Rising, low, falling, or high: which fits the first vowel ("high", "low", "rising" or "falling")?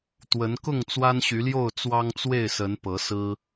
rising